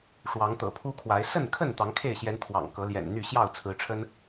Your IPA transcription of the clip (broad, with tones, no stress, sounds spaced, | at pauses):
ʂ w ɑ˨˦ ŋ t̪ ɤ̰˨˩ pʰ u˦ kʰ w a˨˦ ɪ̯ s ə˥˨ n kʰ ə˥˨ n t̪ ɑ˨˦ ŋ kʰ e˥˨ ɪ̯ ɕ j ɛ˨˦ n t̪ʰ w ɑ̰˨˩ ŋ k ɤ˨˦ l j ɛ̰˨˩ n n̪ y˥˨ ɕ j ɑ˥˨ ʊ̯ t͡sʰ ɹ̩˨˦ ʈ͡ʂʰ ə˦ n